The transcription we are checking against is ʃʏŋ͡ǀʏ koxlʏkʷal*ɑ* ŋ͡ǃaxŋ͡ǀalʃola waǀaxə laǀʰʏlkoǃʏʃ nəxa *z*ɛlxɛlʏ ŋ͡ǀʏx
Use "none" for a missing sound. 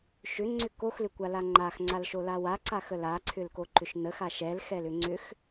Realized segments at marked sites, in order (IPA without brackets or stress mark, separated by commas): a, ʃ